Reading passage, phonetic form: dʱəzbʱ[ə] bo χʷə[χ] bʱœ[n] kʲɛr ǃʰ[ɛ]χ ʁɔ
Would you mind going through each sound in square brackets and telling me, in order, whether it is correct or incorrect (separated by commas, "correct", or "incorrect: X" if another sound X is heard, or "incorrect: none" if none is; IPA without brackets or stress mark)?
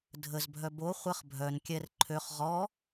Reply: incorrect: œ, correct, correct, incorrect: ø